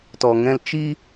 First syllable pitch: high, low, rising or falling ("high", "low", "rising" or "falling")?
low